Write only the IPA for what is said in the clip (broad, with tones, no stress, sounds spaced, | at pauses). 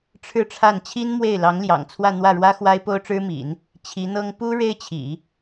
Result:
ʈ͡ʂʰ ɻ̩˥˧ ʈ͡ʂʰ a˥˩ n t͡ɕʰ i˥ n m w e˥˩ ɪ̯ l ɑ˧˥ ŋ l j ɑ̰˨˩ ŋ t͡sʰ w ä˥˧ n̪ w ä˥˩ ɻ w ä˥ x w a˥ ɪ̯ p o˥ ʊ̯ ʈ͡ʂ ɻ̩˥ m ḭ˨˩˦ n | t͡ɕʰ i˧˥ n̪ ɤ˥ ŋ p u˥ ɻ e˥ ɪ̯ t͡ɕʰ ḭ˨˩˦